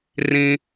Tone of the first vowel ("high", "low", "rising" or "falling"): high